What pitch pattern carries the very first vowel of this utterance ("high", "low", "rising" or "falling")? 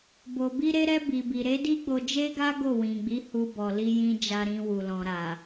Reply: low